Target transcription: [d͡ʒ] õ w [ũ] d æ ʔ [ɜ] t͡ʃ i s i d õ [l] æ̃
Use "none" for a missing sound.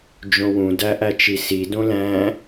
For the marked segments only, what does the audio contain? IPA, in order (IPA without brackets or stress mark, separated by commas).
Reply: d͡ʒ, ũ, æ, l